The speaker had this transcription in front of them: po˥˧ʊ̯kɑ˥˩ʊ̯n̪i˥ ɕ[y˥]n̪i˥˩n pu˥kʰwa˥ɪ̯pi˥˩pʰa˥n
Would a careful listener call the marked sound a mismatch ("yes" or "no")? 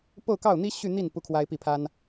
yes